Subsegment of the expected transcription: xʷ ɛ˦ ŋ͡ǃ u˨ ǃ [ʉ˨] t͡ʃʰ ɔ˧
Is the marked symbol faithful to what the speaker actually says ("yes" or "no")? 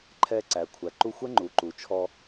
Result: no